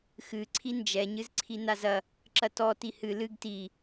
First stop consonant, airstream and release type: click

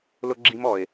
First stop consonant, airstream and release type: click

